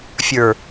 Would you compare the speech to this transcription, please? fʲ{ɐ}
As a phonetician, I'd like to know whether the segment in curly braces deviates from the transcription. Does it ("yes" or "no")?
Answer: yes